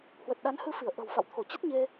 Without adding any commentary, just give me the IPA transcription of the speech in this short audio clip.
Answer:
h w ə˨˩ t̚ ɗ a˨˦ n h ɨ˧ f i˧˩ ə̯ ʔ ə̤˨˩ w f a̰˧˨ w t̪ʰ o˧˩ t͡ɕ ə˦˥ t̚ ɲ e˧

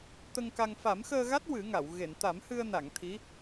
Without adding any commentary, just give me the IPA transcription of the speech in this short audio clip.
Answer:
t̪ ə˧ ŋ k a˧ ŋ f a˨˩˦ m x əː˧ ɣ a˦˥ t̚ w ɨ˨˩˦ ŋ a˨˩˨ w ɣ e˨˩˨ n t̪ a˨˩˦ m h ɨ˧ ə̯ n a˨˩˨ ŋ t̪ʰ i˧˥

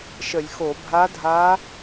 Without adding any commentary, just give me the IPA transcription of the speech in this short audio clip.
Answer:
ʃ ə˧˩˧ lʲ x o˧˩˧ bʱ a˧˥ dʱ a˧˥

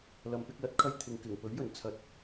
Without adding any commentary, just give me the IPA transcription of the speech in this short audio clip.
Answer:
l ɐ˨ m p ɪ˧ k̚ l ɐ˨˥ t̚ kʰ ɐ˧ j t̪ʰ ɪ˨ ŋ k ɪ˨˩ ŋ p ɵ˨˥ ɥ j ɵ˨˩ n t͡sʰ ɐ˨˥ t̚

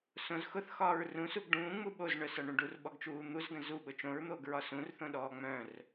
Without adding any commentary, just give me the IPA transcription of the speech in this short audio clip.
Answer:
s õ z x ʊ θ x ɒː ɹ r ũ s u ɡ ɖ ũː ŋ͡m u ɓ o z ɳ œ s ɒ ɳ ũ ɖ u r ɓ ɔ ɡ t͡ʃ uː n̪ u z ɡ ə̃ z u ɓ ʊ t͡ʃ õ ɹ n̪ oː ɡ ɹ ɒ s ũ r θ õ ɗ ɔː ŋ͡m œ̃ r

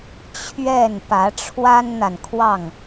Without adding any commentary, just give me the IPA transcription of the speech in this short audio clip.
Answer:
t͡ɕʰ ɥ ɛ˥˨ n p ä˨˦ ʈ͡ʂʰ w a˦ n n̪ a˨ n kʰ w ɑ˥˨ ŋ

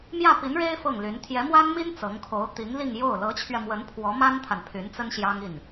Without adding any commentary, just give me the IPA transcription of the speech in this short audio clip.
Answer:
m j ä˥˩ p i˧˥ n ɻ e˥ ɪ̯ f ɤ˥˩ ŋ l y˧˥ n t̪ʰ j ɛ˧˥ m w a˥ n m i˥ n t͡s ɤ˧˥ ŋ kʰ o˧˥ ʊ̯ t̪ i˧˥ ŋ l i˥˧ ŋ j o˥˩ ʊ̯ l ɤ˧˥ t͡ɕʰ ɥ ɛ˧ m w ə˧˥ n pʰ w ɔ˧˥ m a˥ n t̪ʰ a˨ n pʰ y˧˥ n t͡s ə˥ n ɕ j ɑ˥ ŋ i˥˩ n

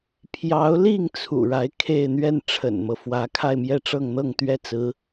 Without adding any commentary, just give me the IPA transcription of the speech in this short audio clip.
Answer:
pʰ j ɑ˧˥ ʊ̯ l i˥˩ ŋ t͡sʰ ṵ˨˩ ɻ a˧˥ ɪ̯ kʰ e˥˧ ɪ̯ n̪ ɥ ɛ˥˩ n ʈ͡ʂʰ ə̰˨˩ n m ɤ˦ f w ä˧˥ kʰ a˥˧ ɪ̯ m j ɛ˥˧ ʈ͡ʂ ɤ˥˧ ŋ n̪ ɤ˥˧ ŋ t̪ ɥ ɛ˥˩ t͡s ɹ̩˧˥

